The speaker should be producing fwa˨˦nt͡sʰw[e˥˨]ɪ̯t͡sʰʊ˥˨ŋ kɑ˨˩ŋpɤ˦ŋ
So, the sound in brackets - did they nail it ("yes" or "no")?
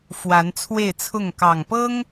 yes